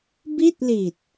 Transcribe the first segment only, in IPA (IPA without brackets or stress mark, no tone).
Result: b